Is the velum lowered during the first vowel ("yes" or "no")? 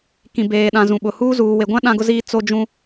yes